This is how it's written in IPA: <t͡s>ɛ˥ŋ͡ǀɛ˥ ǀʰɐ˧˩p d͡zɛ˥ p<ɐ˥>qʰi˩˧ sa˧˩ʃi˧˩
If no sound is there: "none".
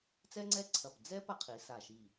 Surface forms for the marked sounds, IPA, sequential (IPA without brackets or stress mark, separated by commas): t͡s, ɐ˥